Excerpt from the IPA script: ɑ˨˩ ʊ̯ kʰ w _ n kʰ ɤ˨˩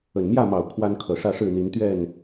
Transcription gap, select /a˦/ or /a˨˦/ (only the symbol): a˦